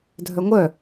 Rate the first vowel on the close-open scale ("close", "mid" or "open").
mid